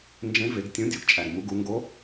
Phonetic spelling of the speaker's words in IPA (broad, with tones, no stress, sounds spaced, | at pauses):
n d͡ʒ ẽ˧˥ v e˩˧ ɡ tʲ ũ˧˥ dʲ o˩ ɡ t͡ʃʼ æ˩ ɡ m u˩˧ ɡ u˩˧ ŋ ɡ o˧˥